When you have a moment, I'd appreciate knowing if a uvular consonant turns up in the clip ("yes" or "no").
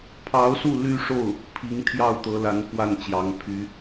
no